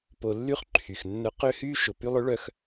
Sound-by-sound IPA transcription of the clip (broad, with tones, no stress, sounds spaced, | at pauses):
p o˧ lː y˦ χ ǃʰ y˨ x nː œ˧ q ø˦ h yː˦ ʃ ʊ˨ p y˧ lˠ ʏ˨˦ ɭ œ˧ x